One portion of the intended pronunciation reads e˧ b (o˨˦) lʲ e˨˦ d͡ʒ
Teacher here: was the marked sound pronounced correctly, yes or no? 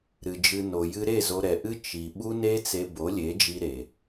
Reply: yes